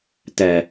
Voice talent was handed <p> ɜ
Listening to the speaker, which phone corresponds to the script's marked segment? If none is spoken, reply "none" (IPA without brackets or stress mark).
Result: t